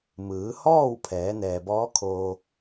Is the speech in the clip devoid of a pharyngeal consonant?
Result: yes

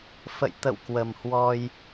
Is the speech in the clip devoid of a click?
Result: yes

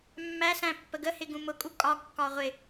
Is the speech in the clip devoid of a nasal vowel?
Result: no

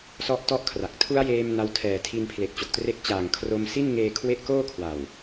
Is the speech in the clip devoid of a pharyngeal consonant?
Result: yes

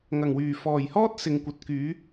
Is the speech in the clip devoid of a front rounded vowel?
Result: no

